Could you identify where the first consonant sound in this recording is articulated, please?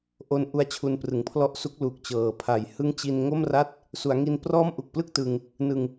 glottal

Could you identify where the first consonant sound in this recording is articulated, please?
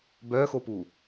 labial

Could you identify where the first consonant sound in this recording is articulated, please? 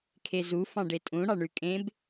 velar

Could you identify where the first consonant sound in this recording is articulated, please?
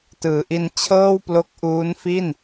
alveolar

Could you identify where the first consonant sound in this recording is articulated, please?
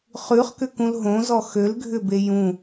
uvular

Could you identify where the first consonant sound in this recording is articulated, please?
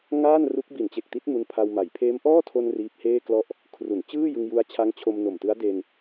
velar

